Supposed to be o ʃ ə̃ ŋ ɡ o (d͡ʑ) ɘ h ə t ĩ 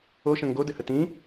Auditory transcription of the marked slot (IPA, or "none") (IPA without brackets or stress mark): d